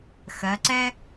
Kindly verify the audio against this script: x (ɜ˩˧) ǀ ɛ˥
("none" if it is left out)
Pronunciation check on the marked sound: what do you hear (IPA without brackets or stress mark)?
ɜ˩˧